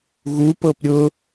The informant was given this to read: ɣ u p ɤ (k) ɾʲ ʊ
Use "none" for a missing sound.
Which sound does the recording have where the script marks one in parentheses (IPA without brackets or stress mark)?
p